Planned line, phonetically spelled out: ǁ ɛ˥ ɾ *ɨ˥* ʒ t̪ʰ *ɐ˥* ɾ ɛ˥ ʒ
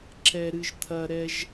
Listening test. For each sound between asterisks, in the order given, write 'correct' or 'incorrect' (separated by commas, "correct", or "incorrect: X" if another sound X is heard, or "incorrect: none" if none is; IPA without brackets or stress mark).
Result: correct, correct